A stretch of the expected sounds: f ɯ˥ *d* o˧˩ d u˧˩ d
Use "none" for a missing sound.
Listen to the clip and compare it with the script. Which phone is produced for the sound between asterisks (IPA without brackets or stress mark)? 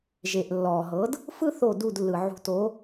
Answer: θ